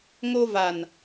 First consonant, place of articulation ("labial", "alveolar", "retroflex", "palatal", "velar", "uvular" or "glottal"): velar